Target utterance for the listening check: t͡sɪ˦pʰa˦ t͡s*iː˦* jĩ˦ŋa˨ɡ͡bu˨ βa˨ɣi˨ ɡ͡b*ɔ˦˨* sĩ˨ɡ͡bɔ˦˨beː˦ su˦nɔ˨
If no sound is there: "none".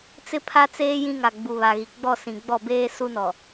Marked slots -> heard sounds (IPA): eː˦, ɔ˦˨

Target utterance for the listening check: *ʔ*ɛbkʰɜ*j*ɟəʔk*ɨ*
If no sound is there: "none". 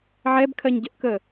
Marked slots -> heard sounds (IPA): ʕ, ɲ, ə

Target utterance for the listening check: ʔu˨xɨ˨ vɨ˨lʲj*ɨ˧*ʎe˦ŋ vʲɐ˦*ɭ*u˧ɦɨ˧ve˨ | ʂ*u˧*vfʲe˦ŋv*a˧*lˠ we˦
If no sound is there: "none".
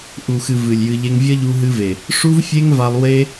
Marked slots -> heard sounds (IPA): ɨ˧, ʎ, u˦, a˧

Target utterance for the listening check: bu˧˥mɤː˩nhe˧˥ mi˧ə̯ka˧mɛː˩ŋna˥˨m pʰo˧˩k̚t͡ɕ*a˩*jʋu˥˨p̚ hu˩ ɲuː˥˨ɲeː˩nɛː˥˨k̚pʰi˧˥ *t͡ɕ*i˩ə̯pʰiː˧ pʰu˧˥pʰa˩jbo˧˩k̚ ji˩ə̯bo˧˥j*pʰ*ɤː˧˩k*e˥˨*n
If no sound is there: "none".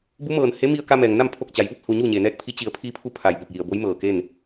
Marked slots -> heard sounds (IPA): a˩, t͡ɕ, m, e˥˨

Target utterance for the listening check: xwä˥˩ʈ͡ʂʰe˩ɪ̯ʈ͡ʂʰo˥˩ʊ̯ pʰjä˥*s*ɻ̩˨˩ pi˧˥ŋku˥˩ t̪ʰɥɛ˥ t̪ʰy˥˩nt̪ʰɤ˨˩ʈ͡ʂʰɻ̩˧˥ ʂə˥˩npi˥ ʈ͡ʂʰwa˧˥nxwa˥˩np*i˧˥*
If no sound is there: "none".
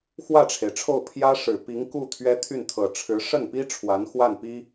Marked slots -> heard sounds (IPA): ʂ, i˥

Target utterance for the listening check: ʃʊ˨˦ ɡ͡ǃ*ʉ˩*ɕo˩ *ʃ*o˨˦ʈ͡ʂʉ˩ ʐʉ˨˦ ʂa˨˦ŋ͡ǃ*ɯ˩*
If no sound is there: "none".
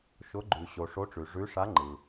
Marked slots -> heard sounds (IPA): ʉ˩, ʂ, ɯ˩

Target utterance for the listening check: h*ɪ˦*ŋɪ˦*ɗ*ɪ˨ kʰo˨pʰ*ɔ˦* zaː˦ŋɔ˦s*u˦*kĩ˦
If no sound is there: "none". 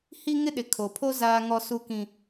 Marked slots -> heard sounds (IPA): i˦, ɗ, o˦, u˦

